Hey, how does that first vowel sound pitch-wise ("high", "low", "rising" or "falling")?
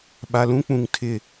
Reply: low